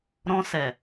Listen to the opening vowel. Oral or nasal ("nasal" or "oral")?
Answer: nasal